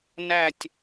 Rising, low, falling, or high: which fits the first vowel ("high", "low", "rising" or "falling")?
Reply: low